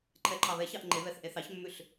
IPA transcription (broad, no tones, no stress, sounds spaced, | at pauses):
ǃʰ ɛ ǃʰ ɑ β ɛ ç ɑ ʔ ŋ͡ǃ e β ɛ θ ʔ e θ ɑ ç mː ʉ ɬ